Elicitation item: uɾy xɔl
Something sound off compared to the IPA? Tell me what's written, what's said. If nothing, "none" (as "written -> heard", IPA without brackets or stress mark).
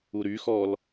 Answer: none